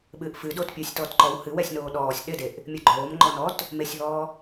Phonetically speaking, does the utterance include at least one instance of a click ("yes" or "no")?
yes